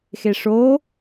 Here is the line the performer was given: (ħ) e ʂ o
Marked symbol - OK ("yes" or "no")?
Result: no